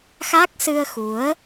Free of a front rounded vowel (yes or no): yes